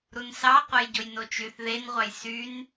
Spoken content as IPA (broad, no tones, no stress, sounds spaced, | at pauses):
ɾ u n s ɑ qʷ e j ɟ o j n o t͡ʃ y θ ð e n ʁʷ ɑ j s y n